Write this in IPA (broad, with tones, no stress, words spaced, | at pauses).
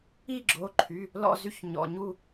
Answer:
i˦˨ɡ͡ǁo˩˧˩ǃʰy˩˧˩ | lɔ̰˦˨zy˦˨ç ɲɔ̰˩˧˩ɲu˦˨